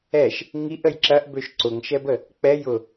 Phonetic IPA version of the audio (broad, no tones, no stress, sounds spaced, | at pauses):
ɛ ʃ | ŋ i ʔ ə j ǁ ɐ ʔ b ø ʃ ǀ ʊ ŋ ʃ ɛ b ə | k͡p ɛ j ʊ